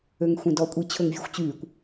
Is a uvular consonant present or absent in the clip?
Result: absent